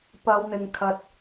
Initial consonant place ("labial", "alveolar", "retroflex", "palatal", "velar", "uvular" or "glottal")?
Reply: labial